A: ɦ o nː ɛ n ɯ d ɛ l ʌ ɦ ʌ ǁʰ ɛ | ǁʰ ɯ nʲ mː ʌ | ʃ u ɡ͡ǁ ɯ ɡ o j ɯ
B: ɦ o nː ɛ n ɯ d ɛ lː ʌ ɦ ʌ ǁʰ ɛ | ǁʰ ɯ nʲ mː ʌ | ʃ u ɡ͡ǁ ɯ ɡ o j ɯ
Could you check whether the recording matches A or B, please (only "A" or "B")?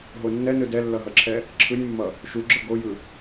B